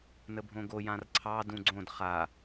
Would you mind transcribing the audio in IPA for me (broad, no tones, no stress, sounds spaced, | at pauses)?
n ə bʱ õ ɡ o j ã r ǀʰ ɑ d ũ ɡ͡ǀ õ d χ a